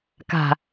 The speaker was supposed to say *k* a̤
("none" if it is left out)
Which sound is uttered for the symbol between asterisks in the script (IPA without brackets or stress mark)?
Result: k